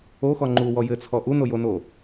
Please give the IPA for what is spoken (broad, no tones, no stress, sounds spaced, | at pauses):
o x ɔ ŋ͡ǃ u w ɔ j ɘ t͡sʰ ɔ ʔ u n o j o n o